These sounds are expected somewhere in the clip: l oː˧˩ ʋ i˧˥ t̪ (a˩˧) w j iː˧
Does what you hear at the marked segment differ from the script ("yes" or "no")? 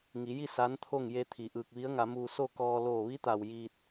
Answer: yes